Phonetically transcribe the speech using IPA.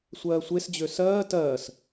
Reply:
sʷ ɜː sʷ e s d͡ʑ ø s ɜː t ɜː s

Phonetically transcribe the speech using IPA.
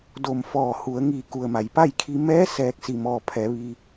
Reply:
d oː˧˩ m f ɔː˧˩ h u˩˧ ə̯ ŋ iː˧˩ k u˩ ə̯ m a˩ j p a˥˨ j kʰ i˧ m ɛː˧˥ s ɛː˧ k̚ s i˧˩ m ɔː˧˩ pʰ ɛː˩˧ ʋ iː˧

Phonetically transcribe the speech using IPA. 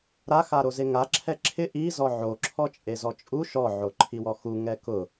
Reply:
ɾ a x a ɾ o z e ŋ a ǁʰ ɛ ǁʰ ɪ ʔ i z ɔ ʕ o ǁʰ ɔ t͡ʃʼ e z ɔ t͡ʃʼ u ʃ ɔ ʕ o ǃʰ i w ɔ x u ŋ ɛ k ʊ

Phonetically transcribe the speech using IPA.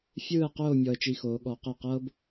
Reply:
fʲ ɯː˥˧ ə̯ q oː˥˧ mʲ ɔ˧ ə̯ t͡ʃ i˧ x oː˩˧ ɠ ɔ˩˧ q ɛ˧˩ q ɤ˥ b

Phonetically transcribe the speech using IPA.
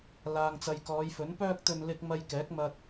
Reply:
l aː˨ ŋ t͡s ɐ˨ j k ɔː˨˧ j f ɵ˨˥ n p œː˧ k̚ t̪ ɵ˨ n l ɪ˨ k̚ m ɐ˧ j k ɛː˨˥ k̚ m ɐ˧ t̚

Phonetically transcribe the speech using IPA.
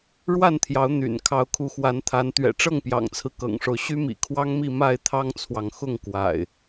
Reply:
ɻ w a˥˨ n t̪ʰ j ɑ˨˦ ʊ̯ n̪ y̰˨˩ n kʰ ɑ˨˦ ʊ̯ kʰ u˨˦ x w a˨˦ n t̪ʰ a˨˦ n t̪ ɥ ɛ̰˨˩ ʈ͡ʂ ɤ˥˨ ŋ p j ɑ̰˨˩ ŋ t͡sʰ ɹ̩˦ k ɤ̰˨˩ ŋ ʂ o˦ ʊ̯ ɕ y˦ m ḭ˨˩ kʰ w ɑ˦ ŋ m i˥˨ m a˥˨ ɪ̯ t̪ʰ ɑ˦ ŋ t͡sʰ w ɑ˨ ŋ x ʊ˥˨ ŋ k w a̰˨˩ ɪ̯

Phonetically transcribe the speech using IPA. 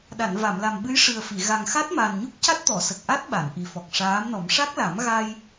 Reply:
ɗ a˨˩˨ n v a˨˩˨ m l a˨˩ m ɓ ɨ˧˥ j ʂ ɨ˨˩ ə̯ f i˨˩˨ ɣ a˨˩ ŋ x a˦˥ t̚ m a˨˩ n ɲ u˦˥ k̚ c a˦˥ t̚ t̪ ɔ˨˩˨ s ə˨˩ k̚ ʔ a˦˥ t̚ ɓ a˨˩˨ n ʔ i˨˩ f ɔ˨˩ k̚ ʂ aː˧˥ m n ɔ˨˩˦ m ʂ a˦˥ k̚ l a˨˩˦ m ɣ a˧ j

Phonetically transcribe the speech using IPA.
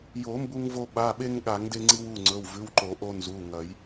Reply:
j o˨˩˦ m b u˦ ŋ v o˦ ɓ a˩˧˩ ɓ e˦ ŋ ɠ a˨˩˦ ŋ d e˦ ŋ͡ǀ i˦ w u˩˧˩ ŋ͡ǀ ɵ˩˧˩ w v ʉ˩˧˩ w ǃ o˨˩˦ ʔ o˦ n z u˩˧˩ ŋ ɐ˨˩˦ j

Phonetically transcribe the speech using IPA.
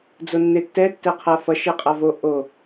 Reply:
d͡z o nː e tː ɛ tː ɛ qʰ a f ʌ ʃ ɛ qʼ a v o ʔ o

